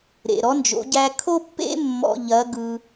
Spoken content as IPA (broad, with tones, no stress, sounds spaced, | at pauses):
ɾ ḛ˩ ɾ ɔ˧˥ n d͡ʒ o̰˩˧ ɟ æ˧ kʰ o˥ pː ḛ˥ mː ɔ̰˧ ʎ ɐ˧˥ ɡ ɯ˧